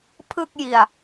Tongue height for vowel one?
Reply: high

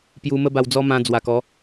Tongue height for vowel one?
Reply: high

